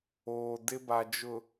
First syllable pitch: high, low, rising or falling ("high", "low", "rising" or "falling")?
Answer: low